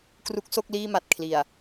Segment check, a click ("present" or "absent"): absent